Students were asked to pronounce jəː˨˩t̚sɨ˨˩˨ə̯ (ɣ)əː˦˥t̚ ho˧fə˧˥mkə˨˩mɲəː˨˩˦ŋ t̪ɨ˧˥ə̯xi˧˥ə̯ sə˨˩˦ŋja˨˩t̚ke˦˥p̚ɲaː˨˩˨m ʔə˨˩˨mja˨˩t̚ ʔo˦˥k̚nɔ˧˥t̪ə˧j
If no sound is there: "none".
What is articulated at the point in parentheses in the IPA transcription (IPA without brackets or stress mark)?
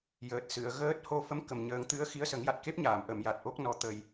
ɣ